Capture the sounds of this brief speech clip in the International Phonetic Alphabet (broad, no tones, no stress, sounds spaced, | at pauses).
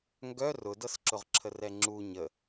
ŋ ɡ œ r ʊ d ɤ s ǁ ʊ ʁ ǁʰ ə r ɛ ŋ͡ǁ u ɲ ə